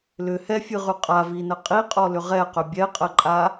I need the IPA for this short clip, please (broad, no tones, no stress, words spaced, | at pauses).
lʏ hɛfʲɨʁʉ qʼavinə qʼiqʼɔlʏ ʁɛqʏ bʲɛqʼəǃʼa